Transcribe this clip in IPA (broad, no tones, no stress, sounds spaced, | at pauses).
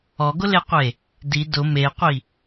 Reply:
ɔ ɡ ʊ l e qʷ e | d i d ʊ m e qʷ i